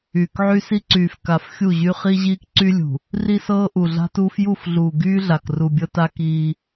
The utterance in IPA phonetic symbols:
yː˨ k ʕ y˦ s i˦ ǀ yː˨ f k a˨ f xʲ u˦˨ ʑ y˦ χ i˦ ʑ iː˦ k ǀ y˦ lʲ ṳ˨ | r i˦ s ɤː˦ ʔ u˨ ɮ a̤˦ t uː˦ f j u˦˨ f ɮ uː˨ ɡ yː˦ ɮ a˨ k r u˨ bʲ ɤ˦ t a˦ k iː˦

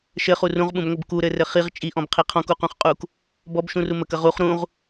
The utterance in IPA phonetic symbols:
ʃ ɘ χ u r ũ ʁ ɓ ũ b ŋʷ ɘ b k u ɾ ɘ r ɘ χ i ʁ t͡ʃʼ i ʔ ɔ̃ b qʰ i qʰ ɔ̃ k u q ũ χ qʼ u k | b ɔ b ʃ ũ r u m ə k ə ʁ u χ ɾ ũ ʁ

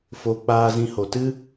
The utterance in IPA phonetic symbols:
f o˨ k͡p aː˧ z ĩ˧ h o˨ t ɨ˦

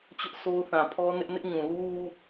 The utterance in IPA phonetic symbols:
t͡ɕ ʊ˦ ʔ sʰ o˦ ʊ̯ θ ã˨ pʰ ɔ˦ n ɪ˦ ʔ n ɪ˦ ʔ ɲ ũ˨ l u˦ w u˦

